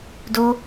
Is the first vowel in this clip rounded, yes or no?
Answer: yes